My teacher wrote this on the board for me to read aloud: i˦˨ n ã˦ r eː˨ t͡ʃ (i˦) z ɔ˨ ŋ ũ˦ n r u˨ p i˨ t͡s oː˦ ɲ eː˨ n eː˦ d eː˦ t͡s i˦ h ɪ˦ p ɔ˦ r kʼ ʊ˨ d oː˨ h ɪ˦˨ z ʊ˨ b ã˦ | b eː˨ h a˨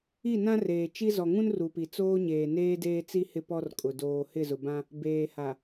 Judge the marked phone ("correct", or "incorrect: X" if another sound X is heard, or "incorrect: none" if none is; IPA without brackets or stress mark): correct